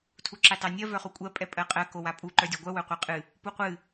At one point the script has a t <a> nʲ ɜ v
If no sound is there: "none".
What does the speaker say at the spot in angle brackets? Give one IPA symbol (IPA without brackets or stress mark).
ɑ